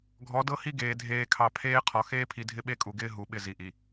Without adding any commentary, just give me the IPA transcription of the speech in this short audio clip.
ɡʱ ɔ˨˦ d ɤ˦ h i˦ ɡ eː˨ dʱ eː˨ kʰ ɑ˨ pʰ eː˦ qʰ ɔ˨ x eː˦ pʰ i˨ dʱ ɪ˦ ɓ e˦ kʼ u˨ ɡ ɪː˦ ɦ u˨ ɓ ɪ˦˨ z i˨ ʔ i˨

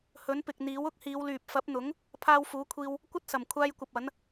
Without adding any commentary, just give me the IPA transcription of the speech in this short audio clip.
h ɵ˨˥ n p ɪ˨ k̚ n̪ iː˨˥ w ʊ˥ k̚ h iː˨˧ w l yː˨ p̚ f ɐ˨˥ p̚ n̪ ʊ˨˥ ŋ | pʰ aː˧ w f uː˨˥ kʷʰ iː˧ w | kʷ ɐ˥ t̚ s ɐ˨˩ m kʷʰ aː˧ j kʷ ɐ˨ p̚ ɐ˨˥ n

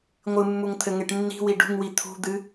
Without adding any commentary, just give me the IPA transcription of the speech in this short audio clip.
ŋʷ ɨ mː u ŋ t̪ʰ ɘ ŋ e ʈ nː i̤ w i ɖ ṳ ŋ w i t̪ʰ ṳ d̪ ɨ

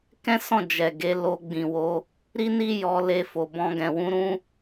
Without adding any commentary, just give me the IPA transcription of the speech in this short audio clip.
k ɛ̃˦ s ɔ̃˦˨ d͡ʒ ɛ˨ ɡ e˧ l o˧ ɡ͡b ĩ˨ w o˧ | ɾ i˦ n i˦ j ɔ˧ l e˧ f o˨ b ɔ̃˧ ɡ ɛ̃˨ w ũ˨˦ ɾ ũ˦

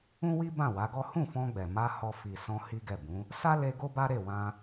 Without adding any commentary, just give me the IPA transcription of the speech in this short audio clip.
ũ˦ w i˦ b ã˦˨ w a˨˦ ɡ ɔ˦ h ũ˦˨ f ɔ̃˧ ɡ͡b ɛ˨ m a˧ h ɔ˧ f i˨ s ɔ̃˧ h i˦ ɡ ɛ˦˨ b ũ˨˦ | s a˦ l e˧ ɡ o˦ b a˦ ɾ e˦˨ w ã˧

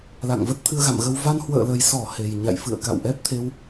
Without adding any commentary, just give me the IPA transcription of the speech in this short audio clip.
l a̰˧˨ ŋ v ə˦˥ t̚ t̪ʰ ɨ˧ ə̯ ɣ a̰˧˨ m ɣ ə˧ w v a˧ n h w ə̰ː˧˨ l ə˨˩ j s ɔ˧˩ h e˨˩ j ɲ a̰˧˨ j f ɨ̰˧˨ ə̯ k a̰˧˨ w ʔ ɛ˦˥ p̚ t̪ʰ e˧ w

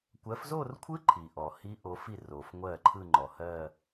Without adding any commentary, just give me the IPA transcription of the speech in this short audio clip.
kʷ ɜ˨˦ f z o˥˧ r kʷʰ ɯ˦˥ ǃʰ i˩ ʔ ɔ˩ h i˦˥ ʔ o˨˦ f i˥˩ r o˩ f ŋʷ ɜ˥˩ ǃʰ ɯ˥˧ ŋ͡ǃ ɔ˩ h ɜ˥˧

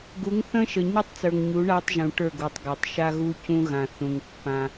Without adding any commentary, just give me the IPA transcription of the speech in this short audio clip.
ɡ u˨˦ ŋ θ ə̃˦ ʃ ə˨ ɲ u˦ tˤ t͡s ə˞˨ ŋ ɲ u˨˦ ɳ a˦ tˤ ʒ ũ˨ ʈ ə˞˦˨ ɡ u˨ tˤ ɡ a˨ tˤ ʃ a˦ ɣ u˦ c ũ˦ ɣ ã˨ θ ũ˨ ŋ pː ã˦

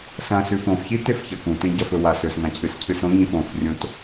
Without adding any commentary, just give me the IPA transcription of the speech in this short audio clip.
s ɐ̃ s ʉ f õ f ç i t e f ç ɐ k ũ t ẽ ɟ ɐ f ɵ w a s ɵ s ŋ ã cʰ ɨ s cʰ ɨ s õ ɲ ĩ f õ f rʲ õ t

